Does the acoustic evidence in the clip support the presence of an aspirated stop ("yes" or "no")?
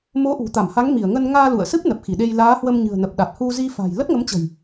no